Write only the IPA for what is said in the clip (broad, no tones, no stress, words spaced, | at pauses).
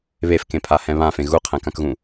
βefkẽpʰahɛ̃ βãfẽ ɣuqʰɛ̃kãkɣũ